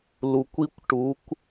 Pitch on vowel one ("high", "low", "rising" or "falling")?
low